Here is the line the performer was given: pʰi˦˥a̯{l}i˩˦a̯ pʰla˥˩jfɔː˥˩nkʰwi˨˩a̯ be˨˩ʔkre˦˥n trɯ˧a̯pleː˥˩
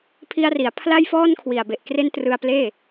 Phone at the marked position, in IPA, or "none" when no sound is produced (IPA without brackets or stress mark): r